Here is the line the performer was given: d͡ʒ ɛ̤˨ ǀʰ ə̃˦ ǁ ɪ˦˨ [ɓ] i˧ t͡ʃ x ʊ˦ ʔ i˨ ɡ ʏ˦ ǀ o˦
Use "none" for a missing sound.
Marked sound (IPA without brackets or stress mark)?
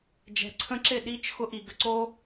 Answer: ɗ